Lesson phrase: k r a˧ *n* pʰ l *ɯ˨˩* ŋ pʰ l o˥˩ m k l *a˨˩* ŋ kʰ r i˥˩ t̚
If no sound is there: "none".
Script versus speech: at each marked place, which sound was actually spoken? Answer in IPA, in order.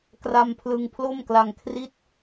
m, ɯ˧, a˧

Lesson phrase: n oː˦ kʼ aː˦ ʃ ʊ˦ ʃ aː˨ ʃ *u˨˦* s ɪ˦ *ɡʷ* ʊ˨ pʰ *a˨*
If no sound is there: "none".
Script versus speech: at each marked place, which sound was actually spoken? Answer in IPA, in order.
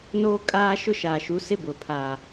u˨˦, b, a˨

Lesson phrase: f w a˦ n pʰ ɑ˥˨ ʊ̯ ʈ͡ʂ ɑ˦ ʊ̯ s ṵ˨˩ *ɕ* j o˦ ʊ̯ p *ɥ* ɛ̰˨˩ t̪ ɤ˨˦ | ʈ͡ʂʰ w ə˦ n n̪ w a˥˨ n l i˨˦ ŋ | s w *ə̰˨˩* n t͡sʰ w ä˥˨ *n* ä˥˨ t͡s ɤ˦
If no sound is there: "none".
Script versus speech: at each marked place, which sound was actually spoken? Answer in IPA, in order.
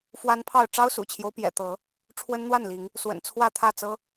t͡ɕʰ, j, ə̰˨˩, t̪ʰ

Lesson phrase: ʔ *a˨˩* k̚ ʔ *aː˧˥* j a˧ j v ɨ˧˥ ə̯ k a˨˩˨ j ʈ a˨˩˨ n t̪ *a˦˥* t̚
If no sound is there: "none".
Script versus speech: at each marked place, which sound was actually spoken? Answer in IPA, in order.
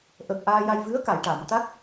ə˨˩, aː˧, a˦˥

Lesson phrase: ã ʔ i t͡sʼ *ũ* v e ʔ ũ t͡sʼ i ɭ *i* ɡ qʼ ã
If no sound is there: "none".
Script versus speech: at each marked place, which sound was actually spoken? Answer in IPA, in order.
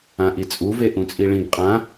u, ĩ

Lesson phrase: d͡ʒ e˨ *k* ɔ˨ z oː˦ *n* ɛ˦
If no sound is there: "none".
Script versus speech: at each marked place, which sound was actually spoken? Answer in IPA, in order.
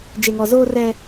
ŋ, r

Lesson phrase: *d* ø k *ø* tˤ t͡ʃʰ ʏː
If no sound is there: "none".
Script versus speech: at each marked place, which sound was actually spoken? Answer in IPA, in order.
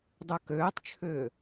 dˤ, øː

